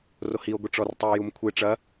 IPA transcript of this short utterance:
rohio̯ ɡʷiʈ͡ʂɔrtˤɨe̯ jumkʷʰe ʈ͡ʂɐ

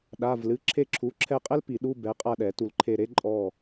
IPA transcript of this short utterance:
ɗa˧˥˧vlɨ˧˥˧ ǁʰe˦˨ǁʰu˨˥ ǁʰɛ˦˨qʼɛ˥l pi˨˩˦ɗu˧˥˧ bɛ˨˥qʼa˦˨ɗɛ˨˩˦ tu˨lǃʰe˦˨ ɾe˥ǃʼɔ˦˨

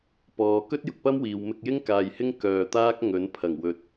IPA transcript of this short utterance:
pɔː˨kɵ˥t̚ jʊ˧k̚pɐ˥mwiː˨w mɪ˧k̚jɪ˥ŋ kaː˨jhɪ˥ŋ kœː˧ t̪aː˥k̚ŋɵ˨˥n pʰɐ˨˩ŋwɵ˨t̚

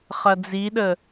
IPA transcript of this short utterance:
χɐd͡ziɗə

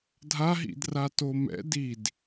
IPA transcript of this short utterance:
dʱaɦḭdrato mɛ̰ did

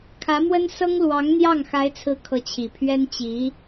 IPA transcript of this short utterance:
kʰä˧˥mwə˥n sɤ˥ŋlwɑ˧˥ŋn̪jɑ˥˩ŋ xa˧˥ɪ̯t͡sʰɹ̩˧˥ kʰɤ˧˥t͡ɕʰi˨˩ pʰɥɛ˥n t͡ɕi˧˥

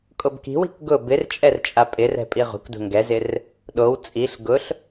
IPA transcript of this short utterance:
kʼobki̤wi̤k ɡʊ bɪrt͡ʃʼɛrt͡ʃʼa pʼɪrɛ̤ pʼiʁṳkdṳ ŋɡɛzɪr | ɗow t͡sʼiɬ ɡʊɬ

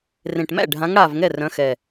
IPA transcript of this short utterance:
rẽ˨˩ʈmæ̰˥˩ ɖʱã˨˦ŋ ɽa˨˩v ŋɛ˥˩rœ̃˨˦xɛ˨˩

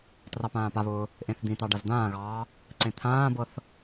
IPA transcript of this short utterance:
trɑpãːpaβʊː | ʔẽθd̪ĩtɑ ɖazd̪ãːɣɑː | ǀẽt̪ʰãːbɤθ

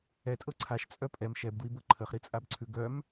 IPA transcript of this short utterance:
ɛtʼɤ ǀʰaʃt͡sʼœ pʼɛm ʃɛbdwibɤ ǃʰəχɾit͡sʼabǀʰʉ ɡœm

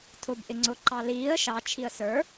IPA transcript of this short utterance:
tʰʊbʔɪ ŋ͡ǀʊǃɑ liːə̯ ʃɑt͡ʃʰiə̯ sə˞

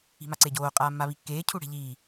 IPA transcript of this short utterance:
i̤maǀeɟoː qʼaːmːaβikːeː cʰuɽe̤ʎiː

